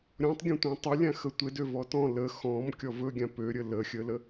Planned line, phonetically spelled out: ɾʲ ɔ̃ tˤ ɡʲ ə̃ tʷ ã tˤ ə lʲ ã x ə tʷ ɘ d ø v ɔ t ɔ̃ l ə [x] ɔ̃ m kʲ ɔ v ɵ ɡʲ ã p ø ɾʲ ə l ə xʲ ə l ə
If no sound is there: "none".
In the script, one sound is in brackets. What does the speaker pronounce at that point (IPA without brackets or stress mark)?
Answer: x